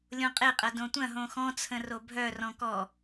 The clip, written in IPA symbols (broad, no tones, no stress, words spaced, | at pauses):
lʲõqʼeqʼɐ dõtʷɐ̃ɦõ xɔ̃t͡sʰə̃ro bʱœrɔ̃ kɔ